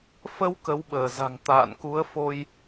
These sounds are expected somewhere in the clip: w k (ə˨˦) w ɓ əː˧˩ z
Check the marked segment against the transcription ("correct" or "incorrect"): correct